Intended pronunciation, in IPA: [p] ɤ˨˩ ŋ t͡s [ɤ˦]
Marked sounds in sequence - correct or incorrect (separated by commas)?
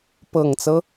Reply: correct, correct